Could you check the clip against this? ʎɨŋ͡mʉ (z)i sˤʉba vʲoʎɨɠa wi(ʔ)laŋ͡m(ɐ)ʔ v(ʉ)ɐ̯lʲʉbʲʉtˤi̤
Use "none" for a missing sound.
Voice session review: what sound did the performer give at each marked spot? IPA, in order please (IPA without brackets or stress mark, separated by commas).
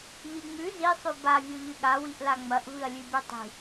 z, ʔ, ɐ, ɨ